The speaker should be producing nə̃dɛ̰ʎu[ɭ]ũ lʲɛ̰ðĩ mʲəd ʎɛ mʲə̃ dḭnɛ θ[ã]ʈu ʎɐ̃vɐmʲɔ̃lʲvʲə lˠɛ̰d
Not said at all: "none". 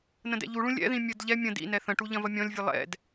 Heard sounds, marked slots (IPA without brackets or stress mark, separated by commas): ɭ, ə̃